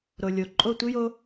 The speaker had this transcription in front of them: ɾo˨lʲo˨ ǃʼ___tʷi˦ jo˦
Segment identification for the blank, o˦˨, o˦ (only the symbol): o˦˨